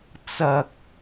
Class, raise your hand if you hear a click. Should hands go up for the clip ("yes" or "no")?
no